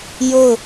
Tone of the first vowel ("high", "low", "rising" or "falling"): falling